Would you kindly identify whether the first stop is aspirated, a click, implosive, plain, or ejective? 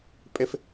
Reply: ejective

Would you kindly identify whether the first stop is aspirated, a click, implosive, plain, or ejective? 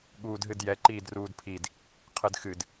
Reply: implosive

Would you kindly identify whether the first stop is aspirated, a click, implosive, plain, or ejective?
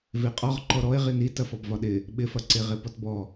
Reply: ejective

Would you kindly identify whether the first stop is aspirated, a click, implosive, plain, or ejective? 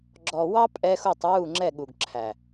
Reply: click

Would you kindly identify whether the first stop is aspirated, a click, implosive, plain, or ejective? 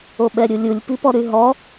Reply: implosive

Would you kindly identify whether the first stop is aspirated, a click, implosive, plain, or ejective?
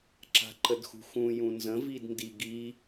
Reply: click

